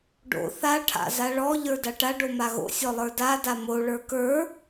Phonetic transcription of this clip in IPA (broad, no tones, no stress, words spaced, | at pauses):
ɖo̰ θa ʈʰa̰zaɭɔ ʎə˞daʈa ɖomaɣo̰ sʲɔlˠə˞da damo ɭə˞kə˞